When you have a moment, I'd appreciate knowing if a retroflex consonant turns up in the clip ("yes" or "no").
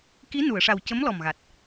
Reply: yes